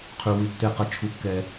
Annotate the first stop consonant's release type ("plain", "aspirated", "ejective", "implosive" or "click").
aspirated